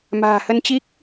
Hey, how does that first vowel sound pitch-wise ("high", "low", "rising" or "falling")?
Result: low